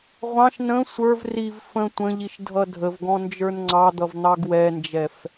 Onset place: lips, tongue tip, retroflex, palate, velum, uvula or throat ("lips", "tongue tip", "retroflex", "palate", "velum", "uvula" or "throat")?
uvula